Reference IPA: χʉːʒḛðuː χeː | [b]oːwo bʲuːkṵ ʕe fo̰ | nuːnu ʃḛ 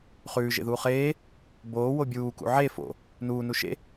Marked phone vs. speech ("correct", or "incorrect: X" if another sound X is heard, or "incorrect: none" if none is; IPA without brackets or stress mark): correct